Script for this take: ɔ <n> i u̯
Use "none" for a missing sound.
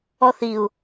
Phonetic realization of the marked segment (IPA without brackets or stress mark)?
θ